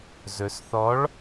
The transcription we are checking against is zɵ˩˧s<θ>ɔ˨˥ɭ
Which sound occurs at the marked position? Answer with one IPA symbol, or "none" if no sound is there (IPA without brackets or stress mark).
θ